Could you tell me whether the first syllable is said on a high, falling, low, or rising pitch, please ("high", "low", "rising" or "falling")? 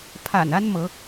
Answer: low